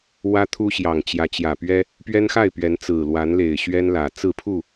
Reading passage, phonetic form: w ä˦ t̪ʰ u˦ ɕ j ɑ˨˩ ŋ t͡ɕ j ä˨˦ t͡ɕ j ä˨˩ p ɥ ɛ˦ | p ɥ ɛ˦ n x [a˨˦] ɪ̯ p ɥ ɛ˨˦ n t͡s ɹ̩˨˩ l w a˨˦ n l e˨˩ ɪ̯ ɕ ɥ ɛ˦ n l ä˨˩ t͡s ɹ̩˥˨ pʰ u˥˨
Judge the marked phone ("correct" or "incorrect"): incorrect